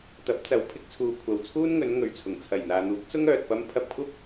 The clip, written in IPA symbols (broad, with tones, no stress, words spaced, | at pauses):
t̪ɐ˨˥p̚t͡sɐ˨˧w pʰɪ˧k̚t͡sʰuː˨ kʷʰɐ˨wt͡sʰuː˥nŋɵ˨˧n ŋɵ˨ɥt͡sʰʊ˨˩ŋ t͡sʰɐ˨˩jn̪aː˨n̪uː˨˥k̚t͡sʊ˥ŋ œː˨t̚pɐ˥m pʰɐ˧p̚kʷʰɐ˥p̚